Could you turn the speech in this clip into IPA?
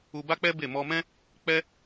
u˧ b a˦ k͡p ɛ˦ b e˦˨ m ɔ˧ m ɛ̃˦ | k͡p ɛ˦

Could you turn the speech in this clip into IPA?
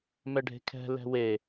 m ɛ ɖʱ e̤ kʰ ɛ̤ l ɛ̤ w e

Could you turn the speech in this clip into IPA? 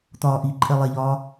t̪ ɒː ʔ i ǃʼ ɛ lˠ ɛ ʎ ɒː

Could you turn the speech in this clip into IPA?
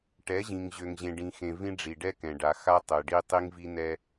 ʈ ɛ˨˦ ʑ ĩ˨ ŋ ʑ ø˨ ŋ ʑ ẽ˨ ɖ ĩ˨ x ẽ˨ v ĩ˦ ɖ͡ʐ i˨ ɖ ɛ˦ k ɛ̃˨ ɖ a˨ x a˦ tˤ ø˨ ɖ i˦ tˤ i˦ ŋ v i˦ n ɛ˦

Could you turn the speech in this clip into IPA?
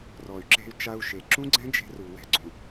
r ɔ˨ y̯ ǁ e̤˧ y̯ t͡ʃ a˧ u̯ ʃ e˨ ǁ ũ˦ ɡ͡ǀ ɛ̃˦ d͡ʒ e̤˧ r u˨ w ɛ̤˨ ɡ͡ǀ ũ˨

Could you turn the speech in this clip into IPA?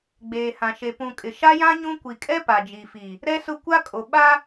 ɡ͡b eː˨ h ã˨ ʃ e˨ p ũ˨ kʼ ɪ˨ ʃ a˦ j ã˦ ɲ ũ˦ kʷ i˨ kʼ ɛ˦ p a˨ d͡ʒ i˨ f i˨ | ɾ ɛ˦ s ʊ˦ kʷ a˦ kʼ o˨ ɓ a˦

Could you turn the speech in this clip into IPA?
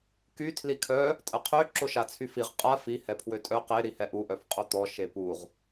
k y tʰ l i kʰ œ | tʼ ə qʰ ø ǁ o ʃ a t͡sʰ y f i ʁ qʼ a f i h ɛ pʰ w ø tʼ œ q e ɾ i h ɛ ʔ u ʔ œ f qʼ o t̪ ɔ ʃ e p u ʁ

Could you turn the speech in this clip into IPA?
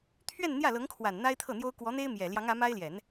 t̪ʰ ɥ ɛ˥˧ n n̪ j ä˥˩ l ɤ˧˥ ŋ kʰ w a˨˩ n n̪ a˥ ɪ̯ t̪ʰ ɤ˥˩ n̪ j o˥ ʊ̯ k w ɔ˧˥ n̪ e˥ ɪ̯ m j ɛ˨˩ l j ɑ˧˥ ŋ ä˧˥ m a˥ ɪ̯ l j ɛ˨˩˦ n

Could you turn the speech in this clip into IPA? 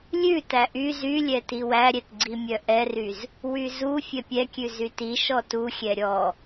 lʲ ʉ t æ ʔ y z y lʲ ɛ t i w æ ɾʲ ɛ t ɡ͡ǀ i mʲ œ ʔ ɛ r y z | w y z u fʲ ɛ pʲ ɛ kʲ ʉ z y t i ʃ ɔ t u xʲ ɛ ɾʲ ɔ

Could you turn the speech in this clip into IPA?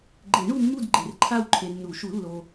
ɡ͡ǃ e˨˩˦ ɳ u˦˨ mː u˦˨ d ɡ͡ǃ e˨ r ǃʰ a˦˨ w ǃʰ e˨ nː u˨˩˦ ʃ u˨˩˦ lː o˨

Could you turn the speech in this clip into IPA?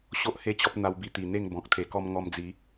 ɕ o˦ ʔ h e˦ t͡ɕ ɔ˦ p̚ n̪ a˧ w b i˧ t̪ i˨˩ n̪ e˥˧ ŋ b ɔ̃˨ k̚ t̪ʰ e˨˩ k ɔ˧ m ŋ ɔ˧ m d͡z i˨˦

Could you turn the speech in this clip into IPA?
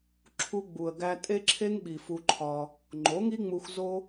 ǁʰ u˧ ɡ͡b u˨ ə̯ ɡ æ˧ tʼ e˦ ǁʰ e˦ ŋ ɓ i˨ f u˧ ǃʰ ɒ˧ | ŋ͡ǃ o˨˦ ŋ i˦ ŋ͡m u˧ x z o˦

